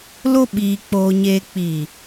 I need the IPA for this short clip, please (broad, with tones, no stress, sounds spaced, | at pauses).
l o˦ ɓ iː˧ k͡p oː˧ ɲ eː˧ k͡p i˨